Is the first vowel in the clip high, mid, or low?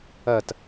low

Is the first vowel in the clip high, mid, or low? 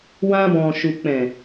low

